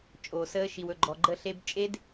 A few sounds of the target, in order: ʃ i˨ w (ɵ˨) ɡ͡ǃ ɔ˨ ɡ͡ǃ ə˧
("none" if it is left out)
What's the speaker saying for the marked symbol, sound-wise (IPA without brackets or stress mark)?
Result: ɵ˨